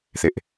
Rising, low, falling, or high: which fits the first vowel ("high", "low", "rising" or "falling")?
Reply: high